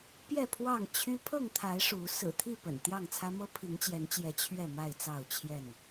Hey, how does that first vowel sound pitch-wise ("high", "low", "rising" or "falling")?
falling